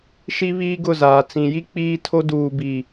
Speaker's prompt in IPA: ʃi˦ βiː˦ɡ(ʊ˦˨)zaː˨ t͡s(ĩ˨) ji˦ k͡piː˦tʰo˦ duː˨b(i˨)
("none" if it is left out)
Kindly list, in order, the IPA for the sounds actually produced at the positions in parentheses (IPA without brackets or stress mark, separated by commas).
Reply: ʊ˦˨, ĩ˨, i˨